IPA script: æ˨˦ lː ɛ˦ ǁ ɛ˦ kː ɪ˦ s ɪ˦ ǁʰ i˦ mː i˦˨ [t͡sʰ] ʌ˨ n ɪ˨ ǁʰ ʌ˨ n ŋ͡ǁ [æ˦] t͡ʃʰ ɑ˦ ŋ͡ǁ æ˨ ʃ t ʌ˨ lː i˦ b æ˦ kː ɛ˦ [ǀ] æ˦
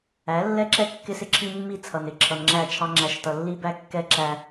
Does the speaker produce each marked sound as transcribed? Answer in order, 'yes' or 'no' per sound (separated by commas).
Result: yes, no, no